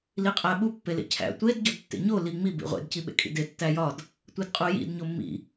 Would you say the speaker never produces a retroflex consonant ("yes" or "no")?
yes